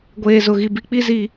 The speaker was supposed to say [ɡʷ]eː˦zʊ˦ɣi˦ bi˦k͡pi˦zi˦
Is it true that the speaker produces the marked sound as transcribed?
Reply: yes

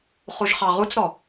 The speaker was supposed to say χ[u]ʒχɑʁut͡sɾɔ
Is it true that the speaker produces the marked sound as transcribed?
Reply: yes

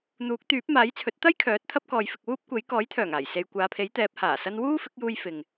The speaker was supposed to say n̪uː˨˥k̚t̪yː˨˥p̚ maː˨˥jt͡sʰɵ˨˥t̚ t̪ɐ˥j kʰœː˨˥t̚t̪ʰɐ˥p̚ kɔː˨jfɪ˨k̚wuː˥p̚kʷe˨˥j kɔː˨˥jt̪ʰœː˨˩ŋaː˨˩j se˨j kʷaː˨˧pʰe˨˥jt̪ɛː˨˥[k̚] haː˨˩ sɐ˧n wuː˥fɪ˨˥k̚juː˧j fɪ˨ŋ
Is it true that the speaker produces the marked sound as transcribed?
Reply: no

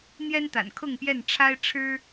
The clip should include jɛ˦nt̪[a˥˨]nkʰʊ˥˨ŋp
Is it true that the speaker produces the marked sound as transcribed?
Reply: no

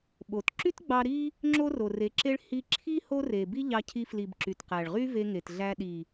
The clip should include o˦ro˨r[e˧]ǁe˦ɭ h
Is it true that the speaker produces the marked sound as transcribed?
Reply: no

